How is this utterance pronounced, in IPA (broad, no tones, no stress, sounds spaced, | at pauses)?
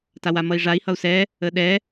t a w a m ʌ i̯ ʐ a i̯ h ʌ u̯ s ɛ | ə ɗ ɛ